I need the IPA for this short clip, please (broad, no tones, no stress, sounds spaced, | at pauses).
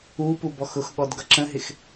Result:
u p u b ɔ x ʊ x ɠ ɔ d ɡ ʌ ǁ ə̃ ɦ ɪ x